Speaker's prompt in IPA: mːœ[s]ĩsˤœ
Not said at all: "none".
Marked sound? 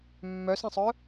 s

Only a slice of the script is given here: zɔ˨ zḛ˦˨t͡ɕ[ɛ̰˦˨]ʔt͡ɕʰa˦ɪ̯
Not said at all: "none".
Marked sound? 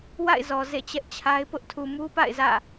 ɛ˦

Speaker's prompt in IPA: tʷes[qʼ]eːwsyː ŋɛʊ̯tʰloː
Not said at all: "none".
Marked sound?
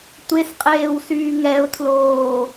qʼ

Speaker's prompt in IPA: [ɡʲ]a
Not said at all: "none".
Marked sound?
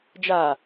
d͡ʒ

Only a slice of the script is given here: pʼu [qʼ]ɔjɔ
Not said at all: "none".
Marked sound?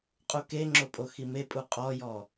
qʼ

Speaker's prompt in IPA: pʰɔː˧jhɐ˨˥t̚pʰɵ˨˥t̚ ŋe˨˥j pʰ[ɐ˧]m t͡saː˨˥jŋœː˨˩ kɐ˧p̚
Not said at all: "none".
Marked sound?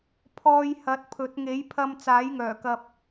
ɐ˧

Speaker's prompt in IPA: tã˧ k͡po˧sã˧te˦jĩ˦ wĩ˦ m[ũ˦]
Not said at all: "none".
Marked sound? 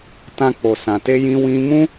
ũ˦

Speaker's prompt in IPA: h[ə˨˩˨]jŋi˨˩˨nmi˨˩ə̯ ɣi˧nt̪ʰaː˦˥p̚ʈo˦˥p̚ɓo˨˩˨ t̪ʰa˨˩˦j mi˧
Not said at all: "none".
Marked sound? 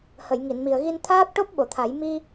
ə˨˩˨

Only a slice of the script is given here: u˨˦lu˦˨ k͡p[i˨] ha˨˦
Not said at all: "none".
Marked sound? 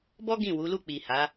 i˨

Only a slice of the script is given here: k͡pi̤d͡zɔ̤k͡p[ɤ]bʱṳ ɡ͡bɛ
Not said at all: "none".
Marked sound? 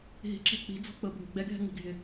ɤ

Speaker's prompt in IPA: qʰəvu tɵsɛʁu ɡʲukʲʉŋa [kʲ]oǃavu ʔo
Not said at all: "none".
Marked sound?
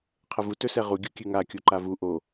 kʲ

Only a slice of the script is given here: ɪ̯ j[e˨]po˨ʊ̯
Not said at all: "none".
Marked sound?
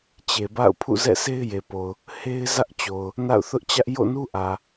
e˨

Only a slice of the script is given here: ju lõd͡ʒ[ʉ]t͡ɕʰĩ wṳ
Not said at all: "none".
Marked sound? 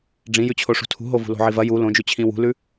ʉ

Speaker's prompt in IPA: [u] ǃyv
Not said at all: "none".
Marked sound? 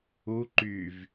u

